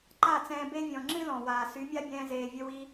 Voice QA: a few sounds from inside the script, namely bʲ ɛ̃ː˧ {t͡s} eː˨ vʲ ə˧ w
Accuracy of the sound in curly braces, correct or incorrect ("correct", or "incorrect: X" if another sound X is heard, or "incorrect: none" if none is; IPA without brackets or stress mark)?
incorrect: z